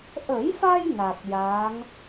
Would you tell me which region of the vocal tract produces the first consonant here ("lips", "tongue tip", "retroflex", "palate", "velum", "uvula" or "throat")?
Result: throat